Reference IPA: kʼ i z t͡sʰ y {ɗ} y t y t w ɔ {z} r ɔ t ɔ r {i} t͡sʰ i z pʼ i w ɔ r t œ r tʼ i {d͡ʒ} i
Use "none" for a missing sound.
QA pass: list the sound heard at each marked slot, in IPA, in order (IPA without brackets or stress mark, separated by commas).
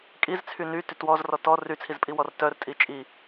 n, z, y, t͡ʃʼ